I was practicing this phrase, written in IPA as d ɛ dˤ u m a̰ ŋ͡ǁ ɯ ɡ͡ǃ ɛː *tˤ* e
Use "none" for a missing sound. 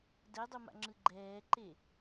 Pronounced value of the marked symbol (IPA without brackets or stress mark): ǃ